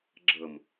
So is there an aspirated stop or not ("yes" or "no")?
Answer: no